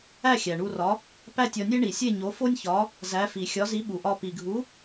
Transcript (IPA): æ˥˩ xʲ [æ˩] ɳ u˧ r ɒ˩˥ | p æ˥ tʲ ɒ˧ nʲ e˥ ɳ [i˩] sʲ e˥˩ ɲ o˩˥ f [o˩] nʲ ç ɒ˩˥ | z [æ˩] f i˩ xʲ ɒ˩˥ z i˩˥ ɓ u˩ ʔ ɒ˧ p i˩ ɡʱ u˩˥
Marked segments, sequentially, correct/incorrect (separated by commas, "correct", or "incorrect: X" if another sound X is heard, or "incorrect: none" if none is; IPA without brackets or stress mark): correct, correct, incorrect: o˥, incorrect: æ˩˥